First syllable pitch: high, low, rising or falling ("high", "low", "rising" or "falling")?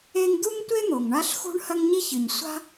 high